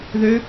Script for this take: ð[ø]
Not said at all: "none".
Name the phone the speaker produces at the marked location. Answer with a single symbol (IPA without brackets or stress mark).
ø